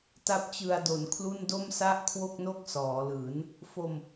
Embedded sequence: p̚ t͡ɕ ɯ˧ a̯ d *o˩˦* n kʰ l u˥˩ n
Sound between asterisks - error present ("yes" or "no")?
no